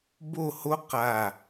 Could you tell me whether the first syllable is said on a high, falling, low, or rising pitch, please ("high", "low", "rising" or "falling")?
falling